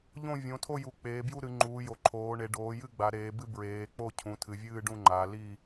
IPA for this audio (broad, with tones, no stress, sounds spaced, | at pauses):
ʎ õ˥˨ vʲ õ˩˧ tʰ o˥˨ j u˩˧ k͡p eː˩˧ b j u˥˨ ɾ ɨ˩˧ ŋ͡ǃ uː˩˧ j o˩˧ ǃʰ oː˩˧ ɳ e˩˧ ɖ oː˩˧ j ɨ˥˨ ɡ͡b a˩˧ ɾ eː˩˧ b ɨ˥˨ b ɹ eː˩˧ k͡p o˥˨ cʰ ũ˩˧ tʰ ɨ˩˧ vʲ ɨː˥˨ ɖ ũ˥˨ ŋ͡ǃ a˩˧ l i˥˨